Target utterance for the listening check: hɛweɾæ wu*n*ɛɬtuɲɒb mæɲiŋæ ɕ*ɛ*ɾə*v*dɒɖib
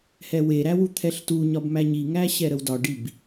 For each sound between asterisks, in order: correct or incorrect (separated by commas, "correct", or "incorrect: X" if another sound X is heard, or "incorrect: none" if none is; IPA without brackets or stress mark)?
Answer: incorrect: t̪ʰ, correct, incorrect: w